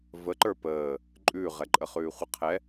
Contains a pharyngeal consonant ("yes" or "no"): no